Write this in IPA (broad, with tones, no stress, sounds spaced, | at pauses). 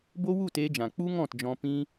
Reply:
b o˦ w u˦˨ t eː˧ d͡ʒ ã˨ k͡p u˦ ŋ ɔ̃˦˨ t d͡ʒ ɔ̃˧ p ĩ˦